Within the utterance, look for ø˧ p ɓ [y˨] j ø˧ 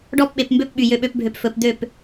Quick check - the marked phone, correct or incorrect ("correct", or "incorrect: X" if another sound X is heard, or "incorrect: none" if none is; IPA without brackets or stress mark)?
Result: correct